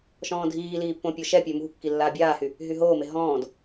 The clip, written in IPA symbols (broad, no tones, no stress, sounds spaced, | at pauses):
ʃ ɔ̃ː dʱ iː l iː pː õ pʲ o ʃ ɛ pʲ ø m ṳ kː i lː aː bʲ aː h y | ɦ y ɦ oː m e ɦ ɔ̃ː d